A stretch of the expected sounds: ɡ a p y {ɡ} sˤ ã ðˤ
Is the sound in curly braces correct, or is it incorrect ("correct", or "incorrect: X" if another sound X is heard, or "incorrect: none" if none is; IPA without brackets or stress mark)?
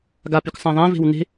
incorrect: k